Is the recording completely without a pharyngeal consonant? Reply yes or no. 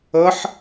no